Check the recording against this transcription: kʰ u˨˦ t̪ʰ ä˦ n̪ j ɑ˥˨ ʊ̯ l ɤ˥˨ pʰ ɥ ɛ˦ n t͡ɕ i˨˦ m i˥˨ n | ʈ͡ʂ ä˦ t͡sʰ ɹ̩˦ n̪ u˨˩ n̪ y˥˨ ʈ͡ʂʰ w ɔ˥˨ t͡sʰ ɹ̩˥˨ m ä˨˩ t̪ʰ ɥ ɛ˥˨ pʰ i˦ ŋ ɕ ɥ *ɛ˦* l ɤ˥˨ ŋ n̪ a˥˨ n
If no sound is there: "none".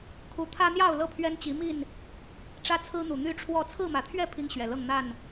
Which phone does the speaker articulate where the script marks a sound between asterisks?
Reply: ɛ˨˩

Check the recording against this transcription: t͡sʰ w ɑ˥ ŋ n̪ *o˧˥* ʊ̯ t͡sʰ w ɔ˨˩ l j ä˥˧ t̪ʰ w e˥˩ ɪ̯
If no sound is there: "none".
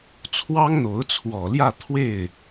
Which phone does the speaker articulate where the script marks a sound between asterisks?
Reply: o˧˥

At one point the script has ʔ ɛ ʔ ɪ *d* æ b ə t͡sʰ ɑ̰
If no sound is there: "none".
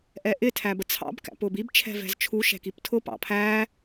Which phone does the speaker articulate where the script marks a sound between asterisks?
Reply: tʰ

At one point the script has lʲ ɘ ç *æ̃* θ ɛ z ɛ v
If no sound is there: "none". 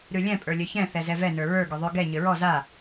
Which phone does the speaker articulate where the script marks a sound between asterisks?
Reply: ɛ̃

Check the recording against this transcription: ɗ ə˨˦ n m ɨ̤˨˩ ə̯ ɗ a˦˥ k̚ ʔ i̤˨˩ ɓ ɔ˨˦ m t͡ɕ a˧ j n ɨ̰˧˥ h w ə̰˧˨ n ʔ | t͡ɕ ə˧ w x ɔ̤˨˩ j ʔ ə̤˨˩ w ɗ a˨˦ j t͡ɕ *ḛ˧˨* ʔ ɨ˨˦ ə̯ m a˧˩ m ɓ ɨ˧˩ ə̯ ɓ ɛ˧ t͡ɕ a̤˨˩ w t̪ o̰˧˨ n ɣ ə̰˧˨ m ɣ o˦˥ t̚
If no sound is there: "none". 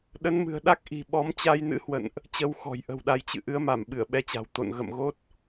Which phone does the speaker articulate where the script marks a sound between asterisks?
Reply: ɨ̰˧˨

